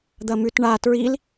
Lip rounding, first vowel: unrounded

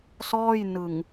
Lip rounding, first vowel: rounded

